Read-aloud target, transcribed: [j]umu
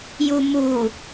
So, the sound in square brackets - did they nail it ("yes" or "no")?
yes